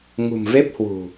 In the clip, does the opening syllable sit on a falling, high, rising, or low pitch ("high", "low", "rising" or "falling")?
low